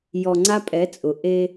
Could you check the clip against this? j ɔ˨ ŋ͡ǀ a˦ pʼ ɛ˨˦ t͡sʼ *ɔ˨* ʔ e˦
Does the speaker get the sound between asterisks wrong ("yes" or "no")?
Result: yes